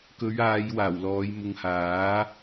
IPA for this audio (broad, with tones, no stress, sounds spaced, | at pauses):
k ɵ˨˧ ɥ aː˨˧ j w aː˨˩ w l ɔː˨˧ j m ʊ˨ ŋ h aː˨˥